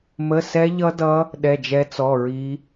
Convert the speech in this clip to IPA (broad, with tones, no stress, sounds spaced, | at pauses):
m ə˧˥˧ s ɛ˦˥ ʎ ʌ˦˥ d ʌ˦˥ | ɗ ɛ˧˥˧ d͡ʒ ɛ˦˥ t͡s ɔ˧˥˧ ɹ i˦˥